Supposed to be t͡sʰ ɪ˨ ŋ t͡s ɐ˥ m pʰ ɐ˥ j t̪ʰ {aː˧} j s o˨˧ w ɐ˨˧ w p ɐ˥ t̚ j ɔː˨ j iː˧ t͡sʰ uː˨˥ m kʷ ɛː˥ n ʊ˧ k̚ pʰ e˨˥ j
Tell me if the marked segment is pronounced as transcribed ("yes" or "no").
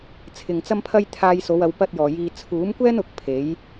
yes